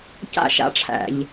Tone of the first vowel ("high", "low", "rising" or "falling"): high